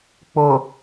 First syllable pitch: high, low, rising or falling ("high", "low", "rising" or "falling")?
low